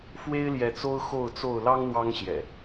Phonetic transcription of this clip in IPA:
f w e˦ ɪ̯ l j ɛ˨˦ t͡s o˦ ʊ̯ x o˥˨ ʊ̯ t͡s o˥˨ ʊ̯ l ɑ˦ ŋ n̪ w ɑ˦ ŋ ɕ j ɛ̰˨˩

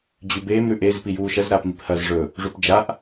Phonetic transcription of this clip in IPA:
d͡ʑ ʉ b eː m ɾ ʉ ʔ e z p i j uː ʃ ɐ z ɾ aː p m i p h ɐ z ʐ ɵ | ʐ u p d͡ʒ a ʔ

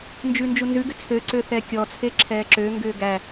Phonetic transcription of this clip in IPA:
n d͡ʒ ʉ n d͡ʒ u n z ʉ ɡ ʏ t͡sʰ ø ǀ ø θ ɛ kʲ ɔ t͡sʰ e ǁʰ ɛː ǁ ø ŋ ɡ ʏː ɡ æ

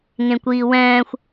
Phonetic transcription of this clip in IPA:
ŋ ẽ kʷ iː w ɛ̃ː xʷ

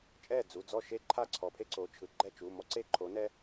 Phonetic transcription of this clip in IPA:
t͡ʃʼ ɛ˥˩ d͡z u˩˧˩ d͡z ɔ˥˩ ʃ e˥ ǃʰ a˥˩ ǀʰ ɔ˩˧˩ pʰ e˥ ǀ o˩˧˩ t͡ʃʰ ɯ˩˧˩ ɡ͡ǃ ɛ˥˩ t͡ʃ u˩˧˩ m ɔ˥ ǀ e˥˩ ǃʰ o˨˥ n ɛ˥

